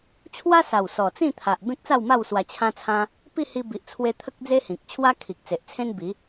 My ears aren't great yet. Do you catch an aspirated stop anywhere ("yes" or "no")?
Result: yes